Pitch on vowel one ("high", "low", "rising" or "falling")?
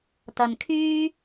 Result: low